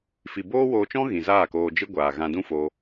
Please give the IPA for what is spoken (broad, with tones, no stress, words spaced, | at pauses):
fi˨boː˦woː˧t͡ʃɔ̃˦ ɣĩ˨zaː˦˨koː˧ d͡ʒɨ˦ɡʷaː˨ ɣã˧dũ˦foː˧